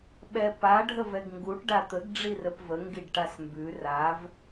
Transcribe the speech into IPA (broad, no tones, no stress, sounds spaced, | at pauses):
ɓ ɛ p a ɖʱ ə v ɛ ɡ ŋ ɡ u ʈ ɖ a t̪ ə ɡ ɖ͡ʐ i r ə p v ə ŋ ɡ i ɖ ʈ a s m b ʉ r a v